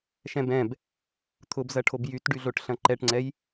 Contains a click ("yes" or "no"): yes